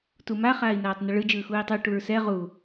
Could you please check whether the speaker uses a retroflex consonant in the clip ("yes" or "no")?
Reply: yes